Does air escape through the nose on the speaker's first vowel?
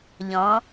yes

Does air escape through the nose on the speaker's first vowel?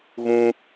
yes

